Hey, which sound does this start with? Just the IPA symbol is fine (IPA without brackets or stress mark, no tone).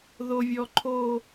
ð